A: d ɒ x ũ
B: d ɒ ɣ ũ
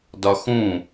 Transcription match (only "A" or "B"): A